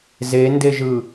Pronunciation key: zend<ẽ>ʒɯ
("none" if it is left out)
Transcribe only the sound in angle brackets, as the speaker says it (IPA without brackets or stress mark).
e